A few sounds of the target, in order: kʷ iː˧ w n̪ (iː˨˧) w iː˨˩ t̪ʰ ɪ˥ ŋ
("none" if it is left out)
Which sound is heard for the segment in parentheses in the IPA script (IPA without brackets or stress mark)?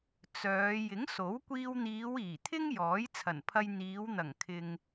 iː˨˧